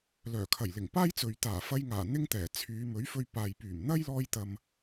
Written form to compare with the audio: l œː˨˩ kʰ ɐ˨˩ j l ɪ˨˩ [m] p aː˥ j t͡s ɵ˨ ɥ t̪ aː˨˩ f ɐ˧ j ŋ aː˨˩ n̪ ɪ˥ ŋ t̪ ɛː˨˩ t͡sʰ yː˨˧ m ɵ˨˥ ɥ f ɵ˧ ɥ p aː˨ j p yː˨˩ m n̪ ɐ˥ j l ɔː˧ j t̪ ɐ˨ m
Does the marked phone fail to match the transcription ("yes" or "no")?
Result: yes